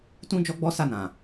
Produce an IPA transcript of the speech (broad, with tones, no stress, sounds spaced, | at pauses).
t ũ˦ d͡ʒ ɔ˦ ɡ͡b ɔ˦ s a˦˨ n ã˨